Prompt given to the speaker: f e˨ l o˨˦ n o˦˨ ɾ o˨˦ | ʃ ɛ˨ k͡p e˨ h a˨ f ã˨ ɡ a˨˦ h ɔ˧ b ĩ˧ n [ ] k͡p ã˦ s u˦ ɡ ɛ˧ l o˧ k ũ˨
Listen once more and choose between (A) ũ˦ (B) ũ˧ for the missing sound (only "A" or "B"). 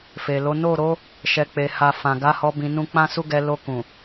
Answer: A